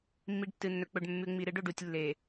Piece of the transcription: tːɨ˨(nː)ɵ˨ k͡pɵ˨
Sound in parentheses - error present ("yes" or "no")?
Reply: no